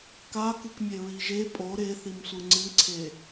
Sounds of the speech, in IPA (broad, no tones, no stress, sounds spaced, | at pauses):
k a k ɨ k mʲ e ɹ i ʒ e pʼ o ɾ e θ i m sʷ ɯ ŋ͡ǀ ɨ ǀʰ e